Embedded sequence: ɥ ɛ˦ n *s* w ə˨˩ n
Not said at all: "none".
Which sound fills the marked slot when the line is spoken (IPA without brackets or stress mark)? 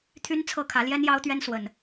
s